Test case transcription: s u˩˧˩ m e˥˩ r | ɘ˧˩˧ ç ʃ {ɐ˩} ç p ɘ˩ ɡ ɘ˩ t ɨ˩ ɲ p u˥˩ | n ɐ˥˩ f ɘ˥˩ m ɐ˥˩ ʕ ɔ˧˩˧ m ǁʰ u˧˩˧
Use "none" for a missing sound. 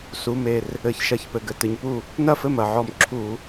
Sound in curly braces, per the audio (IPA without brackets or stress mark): ɐ˧˩˧